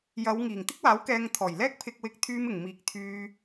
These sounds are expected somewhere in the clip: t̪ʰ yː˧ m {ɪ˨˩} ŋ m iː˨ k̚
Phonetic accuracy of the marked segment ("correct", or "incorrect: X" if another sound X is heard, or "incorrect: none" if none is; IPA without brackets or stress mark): correct